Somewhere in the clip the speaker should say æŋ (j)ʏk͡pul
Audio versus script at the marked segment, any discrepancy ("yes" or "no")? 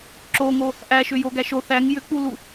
no